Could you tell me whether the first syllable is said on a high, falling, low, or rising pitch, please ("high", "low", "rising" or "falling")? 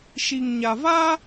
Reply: low